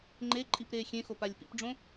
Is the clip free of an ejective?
no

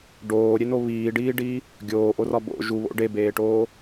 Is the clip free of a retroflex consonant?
no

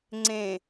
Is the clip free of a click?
no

